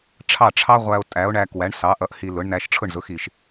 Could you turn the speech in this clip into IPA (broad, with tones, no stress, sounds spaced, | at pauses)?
ʈ͡ʂʰ ɑ˥˩ ʈ͡ʂʰ ɑ˥ ʁʷ æ˧ o̯ tʼ æ˩˥ o̯ ɳ æ˧ k w æ˩˥ ɳ s ɑ˩˥ ʔ ʌ˧ ʔ h i˧ l ʊ˩˥ ɳ n æ˧ ʃ ʈ͡ʂʰ ʊ˥˩ ɳ z ʊ˩˥ x i˩ ʃ